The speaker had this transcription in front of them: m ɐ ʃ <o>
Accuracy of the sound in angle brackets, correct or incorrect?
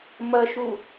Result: incorrect